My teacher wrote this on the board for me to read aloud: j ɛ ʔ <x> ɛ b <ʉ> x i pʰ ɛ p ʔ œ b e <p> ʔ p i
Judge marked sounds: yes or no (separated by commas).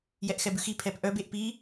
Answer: yes, yes, no